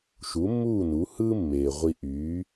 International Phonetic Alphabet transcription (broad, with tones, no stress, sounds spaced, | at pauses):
ʃ u˩˥ mː uː˥˩ n u˩˥ h ɯː˥ mː eː˩ ʁʷ i˧ ʔ yː˩˥